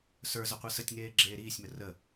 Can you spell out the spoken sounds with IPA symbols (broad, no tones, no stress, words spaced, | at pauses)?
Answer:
sə˞z əqʷesətʲŋeː ɡ͡ǁeːɾiːsʲmə rə